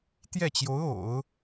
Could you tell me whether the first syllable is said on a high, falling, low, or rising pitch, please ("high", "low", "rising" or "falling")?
falling